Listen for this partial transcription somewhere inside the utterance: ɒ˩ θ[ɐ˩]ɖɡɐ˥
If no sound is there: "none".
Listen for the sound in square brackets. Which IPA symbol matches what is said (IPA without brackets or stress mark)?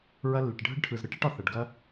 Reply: ɐ˩